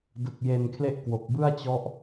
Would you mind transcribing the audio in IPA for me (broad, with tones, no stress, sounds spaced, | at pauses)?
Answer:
d ɯ˨˩ k̚ j e˧ n kʰ l e˥˩ ʔ k w o˨˩ k̚ b ɯ˥˩ a̯ t͡ɕ ɔ˦˥ ʔ